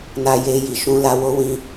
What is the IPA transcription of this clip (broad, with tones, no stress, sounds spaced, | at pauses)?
n a˧ j e˧ j i˨ ʃ ũ˧ l a˧ w o˦ w ĩ˧